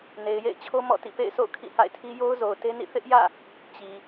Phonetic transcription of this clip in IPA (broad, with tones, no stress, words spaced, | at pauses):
ne˨ɪ̯jḛ˦˨ɪ̯t͡ɕʰo˦ mɔ̰˦˨tḭ˦˨ pḛ˦˨ɪ̯sʰo̰˦˨ʊ̯ kʰḭ˦˨ha̰˦˨ɪ̯tʰi˦ jo˦ʊ̯zo˨ʊ̯te˦nḭ˦˨ θɪ˦ʔjä̰˦˨ | t͡ɕi˨